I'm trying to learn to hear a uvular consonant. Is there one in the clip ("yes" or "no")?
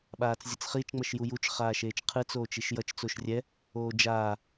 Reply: yes